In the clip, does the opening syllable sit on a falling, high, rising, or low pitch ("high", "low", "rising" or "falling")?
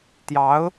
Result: rising